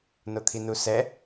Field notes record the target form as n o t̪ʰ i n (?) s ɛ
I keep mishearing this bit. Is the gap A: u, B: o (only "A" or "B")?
A